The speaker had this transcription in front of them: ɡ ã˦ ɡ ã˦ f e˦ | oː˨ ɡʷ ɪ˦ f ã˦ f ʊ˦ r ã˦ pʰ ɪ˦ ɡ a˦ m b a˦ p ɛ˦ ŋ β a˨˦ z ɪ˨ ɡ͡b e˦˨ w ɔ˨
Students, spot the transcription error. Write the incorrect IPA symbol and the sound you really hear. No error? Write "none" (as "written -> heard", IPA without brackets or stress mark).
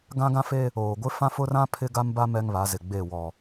p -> m